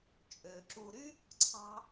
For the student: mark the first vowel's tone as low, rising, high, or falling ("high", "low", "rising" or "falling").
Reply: low